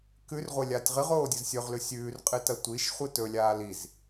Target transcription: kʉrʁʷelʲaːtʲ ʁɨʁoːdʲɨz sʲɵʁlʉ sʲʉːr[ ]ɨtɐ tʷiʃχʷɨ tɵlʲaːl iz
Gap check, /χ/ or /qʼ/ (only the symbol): qʼ